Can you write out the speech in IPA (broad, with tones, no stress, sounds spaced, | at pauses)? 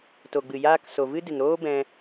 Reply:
t o˨ ɡ͡b ɨ˨ j aː˦ k s o˨ v ɨ˦ d ɨ˨ ŋ ɾ oː˦ b ɛ̃˧